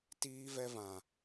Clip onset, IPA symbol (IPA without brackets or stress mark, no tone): t